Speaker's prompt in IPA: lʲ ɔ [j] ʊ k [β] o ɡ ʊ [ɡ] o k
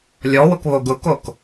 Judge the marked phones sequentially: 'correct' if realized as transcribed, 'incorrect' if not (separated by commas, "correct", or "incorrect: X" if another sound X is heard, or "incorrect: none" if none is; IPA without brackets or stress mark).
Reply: incorrect: w, correct, incorrect: k